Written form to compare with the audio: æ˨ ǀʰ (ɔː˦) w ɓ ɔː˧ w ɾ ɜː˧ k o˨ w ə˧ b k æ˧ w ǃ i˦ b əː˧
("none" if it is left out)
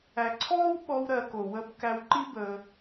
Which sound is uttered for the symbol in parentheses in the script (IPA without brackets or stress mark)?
ɔː˦